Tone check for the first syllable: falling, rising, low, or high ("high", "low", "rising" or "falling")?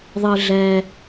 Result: high